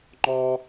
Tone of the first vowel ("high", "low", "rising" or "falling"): high